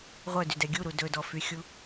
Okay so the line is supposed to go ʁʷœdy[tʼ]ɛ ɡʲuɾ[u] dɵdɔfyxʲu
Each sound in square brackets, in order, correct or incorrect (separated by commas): incorrect, correct